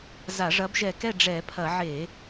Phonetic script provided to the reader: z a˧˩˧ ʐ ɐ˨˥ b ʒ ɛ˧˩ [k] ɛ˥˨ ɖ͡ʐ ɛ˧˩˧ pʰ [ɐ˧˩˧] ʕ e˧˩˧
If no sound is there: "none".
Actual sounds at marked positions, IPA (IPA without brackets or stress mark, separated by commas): k, ɐ˧˩˧